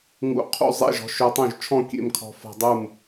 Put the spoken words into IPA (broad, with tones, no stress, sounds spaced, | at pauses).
ŋ ṵ˧ qʰ ṵ˥˨ zˤ ḛ˥˨ ʒ ɔ̤˧ ʃ œ˧ tˤ œ̃˥˨ ʒ t͡ʃʰ ɔ̃˥˨ kʲ ḛ˥˨ m kʰ ɔ̤˧ f ɔ̤˧ dˤ u˥˨ m